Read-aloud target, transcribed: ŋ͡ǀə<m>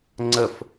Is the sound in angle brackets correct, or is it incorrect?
incorrect: f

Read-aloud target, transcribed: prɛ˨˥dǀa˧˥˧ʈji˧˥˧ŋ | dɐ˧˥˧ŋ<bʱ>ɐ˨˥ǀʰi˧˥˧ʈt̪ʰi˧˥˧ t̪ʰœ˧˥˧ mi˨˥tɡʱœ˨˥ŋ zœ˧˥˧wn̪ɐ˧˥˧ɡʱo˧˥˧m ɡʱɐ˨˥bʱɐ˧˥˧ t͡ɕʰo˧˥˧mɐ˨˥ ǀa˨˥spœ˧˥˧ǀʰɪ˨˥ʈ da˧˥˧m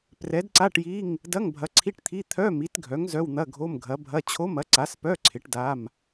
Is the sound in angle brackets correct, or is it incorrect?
correct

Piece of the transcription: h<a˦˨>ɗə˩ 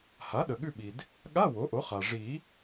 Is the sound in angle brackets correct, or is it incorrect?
incorrect: a˩˥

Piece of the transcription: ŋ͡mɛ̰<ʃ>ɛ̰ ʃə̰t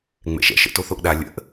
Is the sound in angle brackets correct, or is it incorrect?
correct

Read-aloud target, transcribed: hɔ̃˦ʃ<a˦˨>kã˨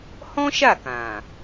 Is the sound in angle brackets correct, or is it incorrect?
correct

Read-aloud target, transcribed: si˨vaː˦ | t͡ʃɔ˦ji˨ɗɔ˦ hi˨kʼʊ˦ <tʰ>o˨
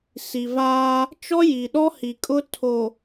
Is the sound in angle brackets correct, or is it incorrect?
correct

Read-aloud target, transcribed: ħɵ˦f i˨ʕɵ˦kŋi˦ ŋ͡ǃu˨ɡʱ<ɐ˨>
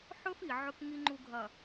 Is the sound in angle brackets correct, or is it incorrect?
correct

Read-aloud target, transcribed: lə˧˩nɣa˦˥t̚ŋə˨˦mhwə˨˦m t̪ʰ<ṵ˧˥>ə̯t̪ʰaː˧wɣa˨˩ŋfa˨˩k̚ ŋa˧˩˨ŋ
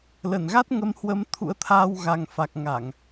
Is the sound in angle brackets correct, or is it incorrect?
correct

